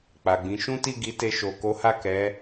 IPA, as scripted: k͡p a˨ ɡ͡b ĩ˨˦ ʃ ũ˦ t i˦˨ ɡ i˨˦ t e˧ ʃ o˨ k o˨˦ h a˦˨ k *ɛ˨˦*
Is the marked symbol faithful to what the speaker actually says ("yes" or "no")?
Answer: yes